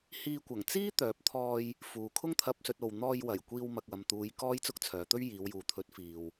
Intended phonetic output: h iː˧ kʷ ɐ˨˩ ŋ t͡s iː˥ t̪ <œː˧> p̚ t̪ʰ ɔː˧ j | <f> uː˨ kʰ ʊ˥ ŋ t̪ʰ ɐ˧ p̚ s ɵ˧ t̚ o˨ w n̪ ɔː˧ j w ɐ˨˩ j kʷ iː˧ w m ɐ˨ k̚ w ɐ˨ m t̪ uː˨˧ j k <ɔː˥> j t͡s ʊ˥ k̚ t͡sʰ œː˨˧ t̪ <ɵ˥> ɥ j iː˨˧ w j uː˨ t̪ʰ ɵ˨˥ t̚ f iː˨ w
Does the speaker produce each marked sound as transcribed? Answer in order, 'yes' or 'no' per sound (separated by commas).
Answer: no, yes, yes, yes